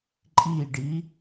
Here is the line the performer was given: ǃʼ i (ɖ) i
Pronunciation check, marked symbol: correct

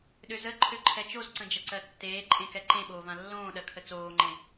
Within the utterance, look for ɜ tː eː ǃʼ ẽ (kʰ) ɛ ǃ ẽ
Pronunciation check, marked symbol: incorrect: k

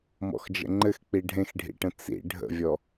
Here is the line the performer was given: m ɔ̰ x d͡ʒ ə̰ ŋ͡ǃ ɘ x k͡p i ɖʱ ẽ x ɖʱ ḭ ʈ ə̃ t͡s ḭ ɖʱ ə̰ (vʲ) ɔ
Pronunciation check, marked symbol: correct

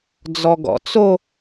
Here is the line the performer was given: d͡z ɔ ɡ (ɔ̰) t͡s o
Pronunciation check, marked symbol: correct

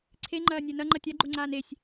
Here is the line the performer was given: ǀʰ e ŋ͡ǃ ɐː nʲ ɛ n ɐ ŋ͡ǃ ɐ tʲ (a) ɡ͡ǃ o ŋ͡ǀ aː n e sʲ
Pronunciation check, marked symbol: correct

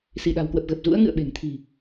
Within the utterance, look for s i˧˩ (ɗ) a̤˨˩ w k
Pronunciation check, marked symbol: correct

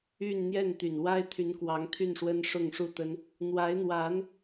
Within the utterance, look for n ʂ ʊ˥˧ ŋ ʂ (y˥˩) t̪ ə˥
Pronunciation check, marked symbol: incorrect: u˥˩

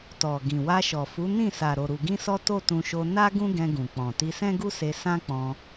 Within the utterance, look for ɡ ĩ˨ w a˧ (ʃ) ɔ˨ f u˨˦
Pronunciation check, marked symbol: correct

